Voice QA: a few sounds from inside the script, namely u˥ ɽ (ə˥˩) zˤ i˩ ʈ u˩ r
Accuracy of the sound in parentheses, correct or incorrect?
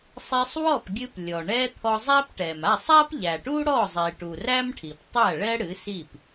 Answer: incorrect